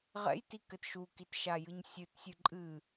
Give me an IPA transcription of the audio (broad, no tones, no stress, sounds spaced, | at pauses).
ʁ ɛ̰ j t i k ɘ t ʃ u k i t ʃ a j ɨ ɲ sʲ ɨ t sʲ ɨ ǃʼ ɨ